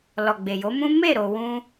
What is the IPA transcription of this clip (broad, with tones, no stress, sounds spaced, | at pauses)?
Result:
l ɔ˨ ɡ͡b e˨ j o˨˦ m ũ˦ m e˦˨ ɾ o˧ w ũ˦